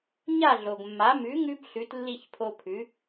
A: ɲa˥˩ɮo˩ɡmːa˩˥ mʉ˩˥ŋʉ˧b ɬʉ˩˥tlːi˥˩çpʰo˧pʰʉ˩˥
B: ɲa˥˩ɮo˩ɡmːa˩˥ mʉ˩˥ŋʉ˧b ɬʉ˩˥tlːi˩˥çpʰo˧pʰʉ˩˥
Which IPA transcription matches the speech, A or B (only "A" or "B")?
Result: A